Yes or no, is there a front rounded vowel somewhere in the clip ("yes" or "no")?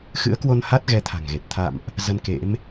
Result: no